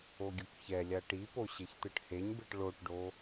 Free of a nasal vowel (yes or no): yes